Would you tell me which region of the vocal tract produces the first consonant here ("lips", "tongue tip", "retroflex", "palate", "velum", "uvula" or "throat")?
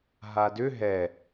throat